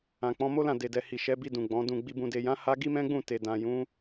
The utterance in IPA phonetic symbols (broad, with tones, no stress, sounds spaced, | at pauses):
ã˨ k͡p ɔ̃˨˦ m o˦ l ã˦˨ d e˨ d ɛ˨ h i˨ ʃ ɛ˨˦ b i˧ d ũ˨ ɡ͡b ɔ̃˨˦ d ũ˦˨ ɡ͡b i˨ b ũ˨ d e˨ j ã˨˦ h a˦ ɡ i˦ m ɛ̃˦ ɡ͡b ũ˦˨ t e˨ d ã˨ j ũ˨˦